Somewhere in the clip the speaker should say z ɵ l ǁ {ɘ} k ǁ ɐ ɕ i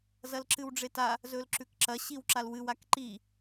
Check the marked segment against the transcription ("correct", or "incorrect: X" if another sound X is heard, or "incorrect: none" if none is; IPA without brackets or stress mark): incorrect: ʉ